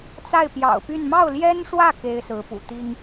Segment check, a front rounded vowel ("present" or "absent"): present